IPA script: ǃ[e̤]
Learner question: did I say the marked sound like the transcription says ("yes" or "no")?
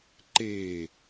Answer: no